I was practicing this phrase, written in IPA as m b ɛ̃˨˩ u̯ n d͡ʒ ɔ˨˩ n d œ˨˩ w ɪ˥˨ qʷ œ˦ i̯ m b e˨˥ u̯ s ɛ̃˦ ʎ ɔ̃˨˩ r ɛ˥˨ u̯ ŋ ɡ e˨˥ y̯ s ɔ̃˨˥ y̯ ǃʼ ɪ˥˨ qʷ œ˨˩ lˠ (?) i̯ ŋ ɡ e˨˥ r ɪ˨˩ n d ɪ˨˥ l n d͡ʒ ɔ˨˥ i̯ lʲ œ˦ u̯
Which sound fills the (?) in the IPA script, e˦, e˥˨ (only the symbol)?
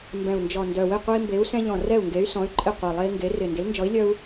e˦